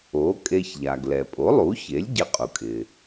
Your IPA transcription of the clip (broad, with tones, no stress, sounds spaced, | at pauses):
o˩˥ kʼ e˧ ç ʎ a˩ ɡ l ɛ˩ pʼ o˩˥ lˠ u˩˥ ç e˩˥ lʲ ɟ ɪ˧ qʼ u˩ kʼ ɪ˩